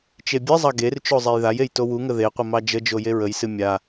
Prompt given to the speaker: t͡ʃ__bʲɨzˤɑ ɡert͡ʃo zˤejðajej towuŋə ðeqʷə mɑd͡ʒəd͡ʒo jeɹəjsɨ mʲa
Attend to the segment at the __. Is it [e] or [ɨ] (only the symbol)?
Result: e